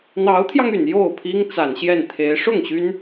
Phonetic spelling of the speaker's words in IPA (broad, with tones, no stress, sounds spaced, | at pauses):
n̪ ɑ˧˥ ʊ̯ t̪ʰ j ɑ˧ ŋ y˨˩ n j o˥˩ ʊ̯ pʰ i˥ ŋ t͡s a˨˩ n ɕ j ɛ˥˩ n t̪ʰ e˧˥ ɪ̯ ʂ ʊ˥˩ ŋ ɕ y˥ n